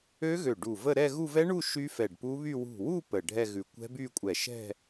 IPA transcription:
ø˦˥ ɣ ø˧˩ ɖ u˧˩ v ə˥˧ ɾ ɛ˥˧ ɣ u˥˧ v ɛ˦˥ ɳ u˥˧ ʃ y˦˥ f ɛ˧˩ ɖ p u˦˥ β y˥˧ w ṳ˧˩ w u˥˧ p ə˧˩ ɖʱ ɛ˥˧ ɣ ʉ˧˩ kʷ ɛ̤˦˥ b y˥˧ kʷʼ ɛ˧˩ ʃ ɛ̤˥˧

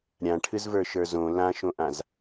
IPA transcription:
ɾʲ ã ʈʰ ɨ z v ə˞ ʃ ə˞ z õ l ã ʃ õ ʔ ã z

